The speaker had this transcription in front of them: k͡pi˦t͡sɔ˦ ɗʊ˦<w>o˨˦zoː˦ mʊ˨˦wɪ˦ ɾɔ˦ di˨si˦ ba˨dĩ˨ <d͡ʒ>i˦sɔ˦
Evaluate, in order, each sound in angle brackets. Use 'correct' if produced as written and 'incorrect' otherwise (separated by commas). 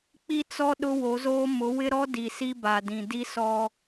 correct, incorrect